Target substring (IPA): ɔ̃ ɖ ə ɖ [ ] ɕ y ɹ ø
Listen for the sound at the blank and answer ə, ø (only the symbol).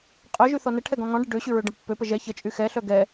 ø